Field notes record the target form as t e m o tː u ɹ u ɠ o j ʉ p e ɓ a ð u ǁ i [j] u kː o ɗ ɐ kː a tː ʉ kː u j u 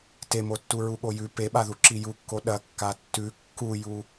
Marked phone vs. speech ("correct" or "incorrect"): correct